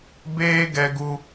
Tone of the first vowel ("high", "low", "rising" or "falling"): high